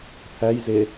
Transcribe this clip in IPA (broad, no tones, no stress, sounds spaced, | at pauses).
pʰ æ j z e